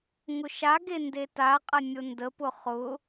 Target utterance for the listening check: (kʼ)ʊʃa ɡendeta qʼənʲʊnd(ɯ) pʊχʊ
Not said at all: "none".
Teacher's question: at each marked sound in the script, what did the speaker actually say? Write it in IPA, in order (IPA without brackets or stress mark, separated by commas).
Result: ŋ, ə